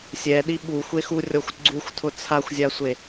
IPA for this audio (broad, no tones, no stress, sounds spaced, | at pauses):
sʲ ɛ ɗ i ɓ u xʷ e x u rʲ ɔ xʷ ɡ͡ǀ u xʷ tʰ ʊ t͡sʰ a xʷ zʲ a sʷ e